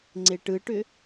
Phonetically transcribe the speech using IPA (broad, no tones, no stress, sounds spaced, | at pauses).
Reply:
ŋ͡ǀ e ʈ ɯ ʈ ʏ